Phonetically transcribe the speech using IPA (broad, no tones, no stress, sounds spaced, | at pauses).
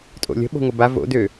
tʼ o̰ lʲ ə̤ ɓ o̤ ŋʷ ə b a v o̰ d ø